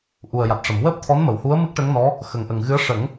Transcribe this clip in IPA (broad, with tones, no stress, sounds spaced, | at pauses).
ʔ u˨˩ ə̯ j a˨˩ t̚ ʂ ə˨˩˨ m w əː˦˥ p̚ t̪ʰ ɔ˧˥ n m ə˨˩˨ w h u˧˥ ə̯ m ɨ˦˥ k̚ ʈ ə˧˥ ŋ n ɔ˧˥ | x ə˨˩ ŋ ʔ ə˨˩ ŋ ɣ ɨ˧˥ ə̯ ʂ ə˨˩˦ ŋ